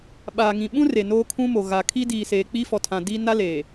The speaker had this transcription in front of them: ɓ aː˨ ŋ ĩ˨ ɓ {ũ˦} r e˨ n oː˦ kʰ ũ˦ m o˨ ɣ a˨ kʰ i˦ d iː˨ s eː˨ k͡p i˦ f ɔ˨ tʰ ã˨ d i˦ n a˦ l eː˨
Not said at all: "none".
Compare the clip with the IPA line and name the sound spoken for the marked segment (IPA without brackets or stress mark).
ũ˦